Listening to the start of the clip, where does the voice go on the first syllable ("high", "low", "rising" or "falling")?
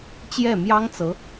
falling